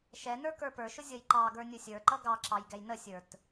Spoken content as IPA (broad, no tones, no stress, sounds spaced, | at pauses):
ʃ ɛ n ə˞ k ə˞ p ə˞ ʃ ʊ zʲ ʌ j ǃ ɑ ɡ ə˞ nʲ ʊ sʲ ə˞ ǃ ʌ ɡ ɑ ǁ ɑ j ɡ ɛ j n ə sʲ ə˞ t